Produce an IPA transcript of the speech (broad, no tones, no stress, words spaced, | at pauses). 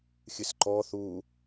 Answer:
xʲɨsǃɔ θu